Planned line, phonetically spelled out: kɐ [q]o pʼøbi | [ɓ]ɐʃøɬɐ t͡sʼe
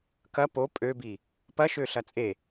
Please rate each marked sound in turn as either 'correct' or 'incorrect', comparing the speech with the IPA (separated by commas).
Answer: incorrect, incorrect